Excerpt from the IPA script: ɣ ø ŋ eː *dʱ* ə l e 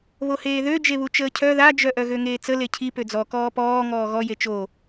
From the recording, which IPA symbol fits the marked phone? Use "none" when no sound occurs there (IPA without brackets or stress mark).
t͡s